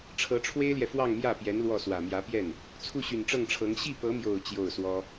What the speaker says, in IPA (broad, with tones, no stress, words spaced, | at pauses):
ʈ͡ʂʰɤ˧˥ʈ͡ʂʰwe˥ɪ̯ljɛ˨ fwɑ˥˧ŋmjä˥˩pjɛ˧˥n lwɔ˥˩swä˨˩ mjä˧˥pjɛ˥˩n | t͡sʰu˥˩ɕy˨˩nʈ͡ʂɤ˥˩ŋʈ͡ʂʰɤ˧˥ŋ ɕi˥˩pɤ˧˥mjo˨˩ʊ̯ t͡ɕjo˥˩ʊ̯swɔ˥